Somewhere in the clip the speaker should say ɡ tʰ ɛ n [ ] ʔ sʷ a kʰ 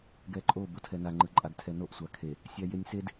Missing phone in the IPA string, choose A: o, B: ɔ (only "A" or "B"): A